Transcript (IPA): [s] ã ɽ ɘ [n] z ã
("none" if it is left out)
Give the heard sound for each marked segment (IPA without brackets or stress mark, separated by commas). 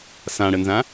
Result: s, n